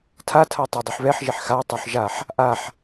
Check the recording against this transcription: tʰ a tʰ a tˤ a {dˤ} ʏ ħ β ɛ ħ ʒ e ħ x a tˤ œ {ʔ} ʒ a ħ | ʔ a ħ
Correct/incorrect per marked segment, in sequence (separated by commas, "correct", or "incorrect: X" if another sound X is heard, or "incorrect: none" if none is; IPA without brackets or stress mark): correct, incorrect: ħ